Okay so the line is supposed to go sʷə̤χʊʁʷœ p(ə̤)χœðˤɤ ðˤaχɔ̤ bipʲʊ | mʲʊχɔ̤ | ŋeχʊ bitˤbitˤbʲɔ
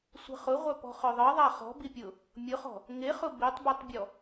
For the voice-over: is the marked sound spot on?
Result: no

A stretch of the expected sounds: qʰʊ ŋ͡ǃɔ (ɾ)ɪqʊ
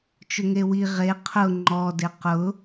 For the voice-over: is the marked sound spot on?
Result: no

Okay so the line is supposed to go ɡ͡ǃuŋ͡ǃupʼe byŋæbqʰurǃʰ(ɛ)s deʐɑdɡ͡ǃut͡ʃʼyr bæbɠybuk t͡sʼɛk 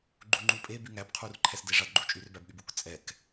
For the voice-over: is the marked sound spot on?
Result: yes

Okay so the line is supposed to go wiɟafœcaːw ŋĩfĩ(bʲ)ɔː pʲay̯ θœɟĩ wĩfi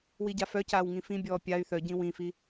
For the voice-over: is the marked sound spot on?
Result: yes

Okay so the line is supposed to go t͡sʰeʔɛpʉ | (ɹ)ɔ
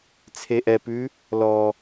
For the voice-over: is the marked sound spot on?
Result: no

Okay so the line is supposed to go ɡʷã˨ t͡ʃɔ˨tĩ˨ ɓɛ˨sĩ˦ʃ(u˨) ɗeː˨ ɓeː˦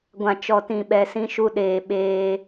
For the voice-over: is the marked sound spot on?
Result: no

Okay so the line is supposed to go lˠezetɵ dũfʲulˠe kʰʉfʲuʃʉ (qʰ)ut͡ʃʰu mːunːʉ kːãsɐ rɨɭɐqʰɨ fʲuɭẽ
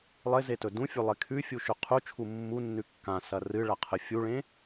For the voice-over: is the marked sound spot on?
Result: yes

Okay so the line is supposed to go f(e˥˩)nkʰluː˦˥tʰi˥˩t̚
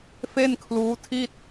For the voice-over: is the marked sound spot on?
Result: yes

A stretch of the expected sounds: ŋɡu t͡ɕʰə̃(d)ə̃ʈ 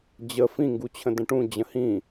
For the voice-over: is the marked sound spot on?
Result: yes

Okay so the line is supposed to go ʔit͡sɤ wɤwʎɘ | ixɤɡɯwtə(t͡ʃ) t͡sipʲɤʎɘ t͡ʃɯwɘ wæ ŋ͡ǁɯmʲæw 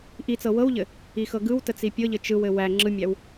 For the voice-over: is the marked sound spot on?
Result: no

